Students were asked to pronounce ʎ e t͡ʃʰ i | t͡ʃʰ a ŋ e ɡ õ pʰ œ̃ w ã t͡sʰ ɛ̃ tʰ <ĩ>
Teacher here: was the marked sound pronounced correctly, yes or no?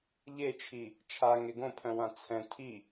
no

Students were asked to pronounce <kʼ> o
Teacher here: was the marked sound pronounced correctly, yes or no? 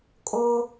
yes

